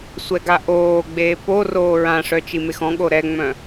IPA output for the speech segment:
sʷ ɛ ɡ a ʔ oː ɡ͡b eː p o r oː ɹ ã ʂ œ t͡ʃ i m e x ɔ̃ ɠ o ɾ ɛ ŋ͡m œ̃

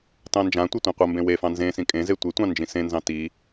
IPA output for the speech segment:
t ɑ̃ n d͡ʒ ã tʷ ɐ tʷ ã qʷ ɐ m b ẽ w e f ɑ̃ n z ẽ s ĩ kʼ ẽ z e tʷ e tʷ ɑ̃ n d͡ʒ ĩ s ẽ n z ɑ̃ t i

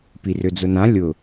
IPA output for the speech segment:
p i r ø d͡z ʊ n ã lʲ ʊ

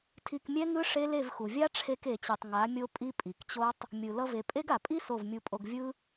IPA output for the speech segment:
tʰ i˧ k mʲ ɛ˦ ŋ ɯ˦ ʂ e˦ l e˦˨ v x u˨ vʲ a˦ ʈ͡ʂʰ e˧ k e˨ t͡ɕ e˨ tˤ ŋ a˨˦ mʲ o˦ pʼ i˦ pʼ i˨ k t͡ɕ o˦ tˤ | mʲ ɯ˨ l ʌ˧ v e˨ pʼ e˦ ɡ a˨ pʼ i˦ s o˦˨ v mʲ u˧ pʼ o˧ ɡ vʲ ɯ˦

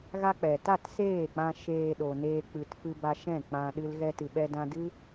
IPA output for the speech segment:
ɣ a˦ k͡p ɛ˨ t a˦˨ t s eː˦˨ k͡p ã˧ ʃ eː˨ ɗ o˨ n eː˧ k͡p ɨ˨ t f ɨ˧ b a˧ ʃ ɛ̃˦˨ k͡p ã˧ ɗ ɨ˧ l ɣ ɛ˧ t ɨ˨ ɓ ɛ˧ d ã˧ d ɨ˦

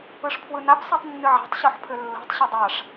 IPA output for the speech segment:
ɯ ʂ pʰ w ɯ n a p s a tˤ nː ɨ ʕ a̤ tˤ ɕ ɔ ħ pʰ ʏ lː o̤ tˤ ɕ e dˤ a ʂ

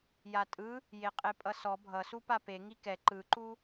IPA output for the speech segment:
j a tʼ ɯ | j e qʼ e pʼ ʌ s ɔ bʱ ʌ s u p a p e ŋ i k ɛ ǃ ɯ ǃ u

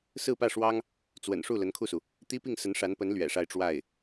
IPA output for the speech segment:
s ɹ̩˥˧ p ä˥˩ ʂ w ɑ˥ ŋ | t͡s w ə̰˨˩ n ʂ u˥˩ l ə˧˥ n kʰ u˥˩ s u˩ | t̪ i˥ p i˥˩ ŋ s ə˧˥ n ʂ a˧˥ n p ə˧˥ n l ɥ ɛ̰˨˩ ʂ a˥˧ ɪ̯ ʈ͡ʂ w a˥˩ ɪ̯

